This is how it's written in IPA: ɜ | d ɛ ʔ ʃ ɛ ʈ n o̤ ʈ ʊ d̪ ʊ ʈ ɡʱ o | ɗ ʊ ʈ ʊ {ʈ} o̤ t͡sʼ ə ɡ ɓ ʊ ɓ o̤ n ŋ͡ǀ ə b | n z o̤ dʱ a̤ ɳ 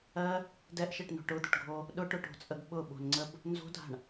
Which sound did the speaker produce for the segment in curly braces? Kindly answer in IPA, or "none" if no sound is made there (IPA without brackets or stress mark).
ʈ